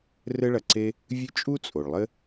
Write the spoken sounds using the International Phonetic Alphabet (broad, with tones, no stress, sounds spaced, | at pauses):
r ɘ˦ ɭ ɐ˨ ǀ e˦ | vʲ ɨ˦ t͡ʃʼ u˥ t͡sʼ o˩ ɭ lˠ ɘ˥